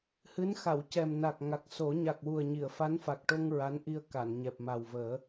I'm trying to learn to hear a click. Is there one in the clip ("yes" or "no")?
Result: no